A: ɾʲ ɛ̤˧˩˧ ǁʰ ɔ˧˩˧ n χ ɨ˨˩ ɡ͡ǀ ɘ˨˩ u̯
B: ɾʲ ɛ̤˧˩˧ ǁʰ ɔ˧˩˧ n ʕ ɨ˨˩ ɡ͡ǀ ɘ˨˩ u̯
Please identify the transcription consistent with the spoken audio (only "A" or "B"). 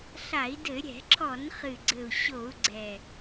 A